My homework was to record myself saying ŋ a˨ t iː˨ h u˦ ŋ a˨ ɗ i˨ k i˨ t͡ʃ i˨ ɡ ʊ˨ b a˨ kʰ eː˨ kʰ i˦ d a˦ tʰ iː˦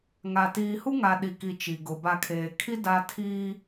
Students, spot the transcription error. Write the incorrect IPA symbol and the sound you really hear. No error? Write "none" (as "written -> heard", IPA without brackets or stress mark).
none